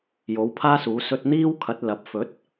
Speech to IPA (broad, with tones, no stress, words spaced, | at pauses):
jo˨˥wpʰaː˥suː˨˥ sɵ˧t̚n̪iː˥wkʰɐ˨˥t̚ lɐ˨˥p̚ fɵ˨˥t̚